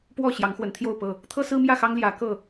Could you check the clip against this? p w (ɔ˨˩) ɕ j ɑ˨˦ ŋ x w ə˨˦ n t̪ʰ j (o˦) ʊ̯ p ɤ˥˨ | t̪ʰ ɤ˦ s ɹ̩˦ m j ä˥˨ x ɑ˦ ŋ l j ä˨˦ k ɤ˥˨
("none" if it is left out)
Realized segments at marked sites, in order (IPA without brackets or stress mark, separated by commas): ɔ˥˨, o˥˨